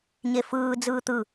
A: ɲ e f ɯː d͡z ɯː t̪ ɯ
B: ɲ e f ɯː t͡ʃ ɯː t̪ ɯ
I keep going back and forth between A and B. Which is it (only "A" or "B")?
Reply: A